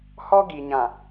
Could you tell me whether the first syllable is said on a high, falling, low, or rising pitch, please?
high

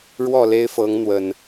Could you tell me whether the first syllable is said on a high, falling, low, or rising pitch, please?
falling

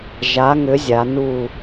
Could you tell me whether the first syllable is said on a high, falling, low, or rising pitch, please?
rising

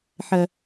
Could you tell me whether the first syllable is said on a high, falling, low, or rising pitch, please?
low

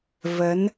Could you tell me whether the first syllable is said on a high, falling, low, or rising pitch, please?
rising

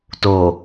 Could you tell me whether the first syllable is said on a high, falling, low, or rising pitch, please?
low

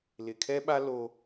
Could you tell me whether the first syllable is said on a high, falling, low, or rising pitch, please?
low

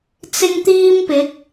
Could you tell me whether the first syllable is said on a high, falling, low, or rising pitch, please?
high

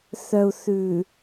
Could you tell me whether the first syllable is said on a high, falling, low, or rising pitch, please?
low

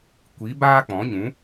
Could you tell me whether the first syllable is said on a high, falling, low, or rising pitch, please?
rising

